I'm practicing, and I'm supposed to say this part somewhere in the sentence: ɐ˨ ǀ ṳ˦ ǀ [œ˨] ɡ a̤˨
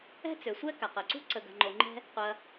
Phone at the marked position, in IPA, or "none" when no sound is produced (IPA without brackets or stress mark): ə˨